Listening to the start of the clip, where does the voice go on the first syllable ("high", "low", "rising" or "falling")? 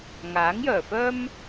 rising